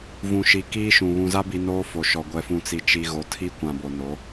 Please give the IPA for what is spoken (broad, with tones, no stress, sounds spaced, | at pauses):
v ũ˨ ʃ i˨ k iː˦ ʃ ũ˨ β ũ˨ z a˦ b i˨ n oː˦ f o˨ ʃ ɔ˨ ɡʷ ɛ˨ f ũ˨ t͡s i˨ t͡ʃ i˨ ɣ o˨ tʰ i˦ kʷ ã˨ b o˨ n o˨˦